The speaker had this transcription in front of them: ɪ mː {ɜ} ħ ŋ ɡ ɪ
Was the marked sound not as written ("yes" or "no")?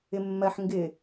no